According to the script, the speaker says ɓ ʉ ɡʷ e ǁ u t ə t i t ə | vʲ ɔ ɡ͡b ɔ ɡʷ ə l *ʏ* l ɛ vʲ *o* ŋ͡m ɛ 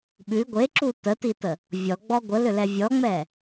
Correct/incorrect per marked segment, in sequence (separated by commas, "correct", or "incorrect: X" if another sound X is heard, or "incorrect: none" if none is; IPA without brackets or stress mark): correct, incorrect: ɔ